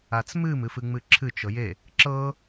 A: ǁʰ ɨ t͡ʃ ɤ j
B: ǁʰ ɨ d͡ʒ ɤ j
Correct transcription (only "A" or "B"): A